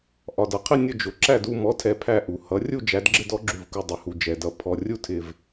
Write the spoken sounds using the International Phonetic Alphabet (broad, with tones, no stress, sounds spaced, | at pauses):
ʔ ɒ˨˩ d ʌ˨˩ qʰ ɪ˥˨ nʲ ʊ˥˨ d͡ʒ ʊ˩˥ ǁ æ˥˨ d u˥˨ m ɔ˩˥ tʰ ɛ˨˩ pʰ æ˥˨ ʔ u˨˩ h ʌ˩˥ rʲ u˥˨ d͡ʒ æ˩˥ d ɡ͡ǁ ɪ˥˨ d ɔ˩˥ ɡ͡ǁ u˨˩ v k u˨˩ dˤ ʊ˩˥ h u˨˩ d͡ʒ ɛ˨˩ d ʌ˩˥ pʰ ɔ˨˩ rʲ u˥˨ tʰ ɪ˨˩ v